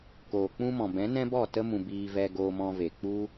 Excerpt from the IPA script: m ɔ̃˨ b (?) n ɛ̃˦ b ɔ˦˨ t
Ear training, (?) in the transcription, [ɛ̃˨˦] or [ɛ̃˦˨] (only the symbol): ɛ̃˨˦